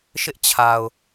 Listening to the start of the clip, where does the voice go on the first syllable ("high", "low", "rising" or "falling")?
high